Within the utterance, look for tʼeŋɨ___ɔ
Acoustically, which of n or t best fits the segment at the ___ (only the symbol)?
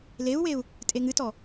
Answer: t